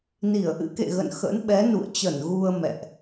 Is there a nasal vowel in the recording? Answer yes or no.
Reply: no